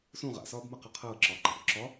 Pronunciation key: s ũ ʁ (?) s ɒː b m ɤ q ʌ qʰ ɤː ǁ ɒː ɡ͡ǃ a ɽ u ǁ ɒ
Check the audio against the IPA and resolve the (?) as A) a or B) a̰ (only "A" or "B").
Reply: B